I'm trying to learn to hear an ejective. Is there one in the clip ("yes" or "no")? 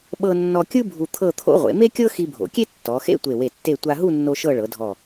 no